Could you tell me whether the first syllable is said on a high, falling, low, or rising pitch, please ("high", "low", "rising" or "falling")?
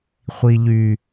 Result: low